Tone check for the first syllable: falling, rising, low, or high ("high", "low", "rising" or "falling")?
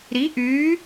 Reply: rising